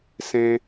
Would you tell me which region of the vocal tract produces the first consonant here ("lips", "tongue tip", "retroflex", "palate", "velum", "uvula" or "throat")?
tongue tip